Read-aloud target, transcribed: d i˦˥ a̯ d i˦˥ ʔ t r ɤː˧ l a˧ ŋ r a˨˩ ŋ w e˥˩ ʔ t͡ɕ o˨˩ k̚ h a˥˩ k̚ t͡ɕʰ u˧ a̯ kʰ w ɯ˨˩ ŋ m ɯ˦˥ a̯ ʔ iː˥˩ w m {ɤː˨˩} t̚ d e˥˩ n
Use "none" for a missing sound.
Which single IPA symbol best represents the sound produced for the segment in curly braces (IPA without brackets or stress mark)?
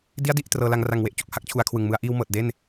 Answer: ɤː˨˩